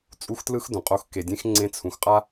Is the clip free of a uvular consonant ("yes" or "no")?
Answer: no